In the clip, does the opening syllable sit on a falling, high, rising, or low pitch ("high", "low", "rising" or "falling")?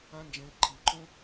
high